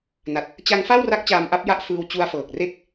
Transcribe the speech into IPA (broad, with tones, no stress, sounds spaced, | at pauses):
n a˨˩ t̚ | t͡ɕ a˦˥ ŋ f a˥˩ w r a˦˥ k̚ t͡ɕ aː˧ m ʔ a˦˥ p̚ j a˥˩ ʔ f ɯː˧ w t͡ɕ u˧ a̯ f ɤː˨˩ k̚ r e˥˩ k̚